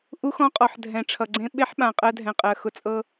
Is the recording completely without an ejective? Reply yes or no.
no